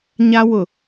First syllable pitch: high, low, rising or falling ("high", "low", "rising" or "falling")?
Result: high